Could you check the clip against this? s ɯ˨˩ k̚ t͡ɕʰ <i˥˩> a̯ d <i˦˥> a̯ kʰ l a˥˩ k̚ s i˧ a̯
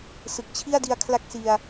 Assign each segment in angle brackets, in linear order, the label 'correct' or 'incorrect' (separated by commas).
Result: correct, incorrect